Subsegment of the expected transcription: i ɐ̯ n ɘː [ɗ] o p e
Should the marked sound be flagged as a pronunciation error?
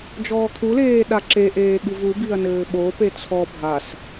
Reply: yes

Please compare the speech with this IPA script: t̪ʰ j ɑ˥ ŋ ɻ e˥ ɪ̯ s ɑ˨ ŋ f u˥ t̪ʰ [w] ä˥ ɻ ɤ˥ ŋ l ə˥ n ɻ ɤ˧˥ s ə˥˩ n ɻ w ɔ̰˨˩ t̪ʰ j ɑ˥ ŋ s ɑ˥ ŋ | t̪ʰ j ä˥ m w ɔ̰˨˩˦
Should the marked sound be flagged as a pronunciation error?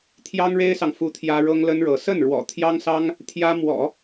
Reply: yes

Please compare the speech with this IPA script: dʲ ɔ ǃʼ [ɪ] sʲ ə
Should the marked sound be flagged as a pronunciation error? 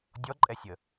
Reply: yes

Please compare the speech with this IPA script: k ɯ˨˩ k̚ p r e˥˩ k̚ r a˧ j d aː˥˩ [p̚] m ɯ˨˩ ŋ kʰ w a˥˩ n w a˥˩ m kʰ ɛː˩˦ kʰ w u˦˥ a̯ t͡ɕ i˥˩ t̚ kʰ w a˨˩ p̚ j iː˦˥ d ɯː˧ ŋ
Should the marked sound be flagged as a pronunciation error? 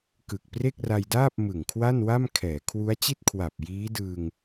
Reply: no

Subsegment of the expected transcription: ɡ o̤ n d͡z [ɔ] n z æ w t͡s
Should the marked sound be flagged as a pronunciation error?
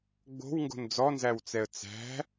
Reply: no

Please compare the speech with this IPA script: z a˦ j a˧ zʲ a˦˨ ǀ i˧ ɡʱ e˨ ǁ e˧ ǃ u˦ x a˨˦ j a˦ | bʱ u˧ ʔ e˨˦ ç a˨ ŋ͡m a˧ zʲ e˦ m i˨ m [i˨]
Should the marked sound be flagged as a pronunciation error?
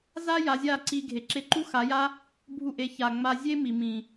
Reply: yes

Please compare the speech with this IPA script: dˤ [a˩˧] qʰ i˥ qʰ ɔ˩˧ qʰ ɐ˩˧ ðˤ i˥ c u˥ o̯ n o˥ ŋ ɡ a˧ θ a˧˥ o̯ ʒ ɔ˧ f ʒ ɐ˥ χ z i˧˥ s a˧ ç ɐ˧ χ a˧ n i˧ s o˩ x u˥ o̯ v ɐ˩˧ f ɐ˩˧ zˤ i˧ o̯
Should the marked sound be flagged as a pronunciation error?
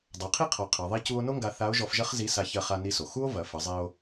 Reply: no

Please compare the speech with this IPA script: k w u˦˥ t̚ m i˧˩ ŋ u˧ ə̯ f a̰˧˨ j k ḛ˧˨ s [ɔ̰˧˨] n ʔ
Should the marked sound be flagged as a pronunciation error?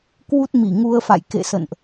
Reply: yes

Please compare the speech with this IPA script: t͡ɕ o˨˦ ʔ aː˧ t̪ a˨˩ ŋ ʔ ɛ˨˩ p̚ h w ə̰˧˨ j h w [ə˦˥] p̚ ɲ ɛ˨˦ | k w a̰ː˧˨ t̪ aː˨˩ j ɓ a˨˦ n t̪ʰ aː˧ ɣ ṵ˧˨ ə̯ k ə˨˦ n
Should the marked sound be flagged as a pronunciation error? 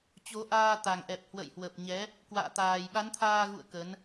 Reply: yes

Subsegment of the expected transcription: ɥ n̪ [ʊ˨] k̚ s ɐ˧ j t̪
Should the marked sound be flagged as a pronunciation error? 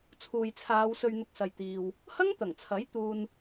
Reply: yes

